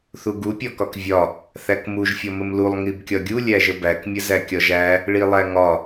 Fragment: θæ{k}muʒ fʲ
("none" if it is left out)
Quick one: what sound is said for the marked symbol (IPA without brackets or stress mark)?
k